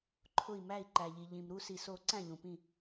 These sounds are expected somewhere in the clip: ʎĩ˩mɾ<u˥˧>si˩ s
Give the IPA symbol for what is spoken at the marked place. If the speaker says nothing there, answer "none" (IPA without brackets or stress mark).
u˥˧